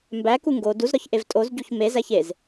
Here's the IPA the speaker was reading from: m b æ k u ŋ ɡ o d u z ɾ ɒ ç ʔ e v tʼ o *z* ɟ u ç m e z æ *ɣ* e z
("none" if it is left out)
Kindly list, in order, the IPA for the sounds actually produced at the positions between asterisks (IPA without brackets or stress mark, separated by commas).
z, ç